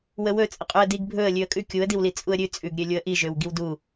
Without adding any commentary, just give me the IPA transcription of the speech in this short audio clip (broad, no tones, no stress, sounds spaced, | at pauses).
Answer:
w ə w ɵ t͡sʼ ə qʼ ʉ ə̯ d i ɡ bʱ ɵ ə̯ lʲ ʉ ə̯ kʼ ʉ kʲ u ə̯ d i w l i t͡sʼ u ə̯ ɾʲ ʉ t͡sʼ ʉ ɡ ɾʲ ø lʲ u ə̯ ʔ i ʒ ø w ɡ i w d u